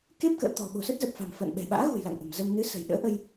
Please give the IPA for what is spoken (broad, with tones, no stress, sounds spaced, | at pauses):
k e˦˥ p̚ k ə̰ː˧˨ t̪ ɔ̤˨˩ ɓ o̤˨˩ s ə˦˥ t̚ z ə˨˩ p̚ f a̤˨˩ m f ə̰ː˧˨ n ɓ ɛ̤˨˩ ɓ a̰ː˧˥ ɣ ṳ˨˩ j l a̰˧˨ ŋ ʔ ə̤˨˩ m z ə˧ m n ɨ˨˦ s ə̤˨˩ j ɗ ə̰ː˧˥ ʔ ə˧ j